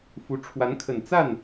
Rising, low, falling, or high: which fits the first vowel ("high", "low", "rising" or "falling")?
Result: rising